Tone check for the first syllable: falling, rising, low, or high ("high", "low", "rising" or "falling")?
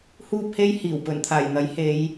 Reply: high